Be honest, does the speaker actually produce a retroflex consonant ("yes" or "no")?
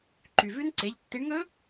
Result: yes